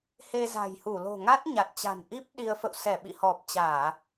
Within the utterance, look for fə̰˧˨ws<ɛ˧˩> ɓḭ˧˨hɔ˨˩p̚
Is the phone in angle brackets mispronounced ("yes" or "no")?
no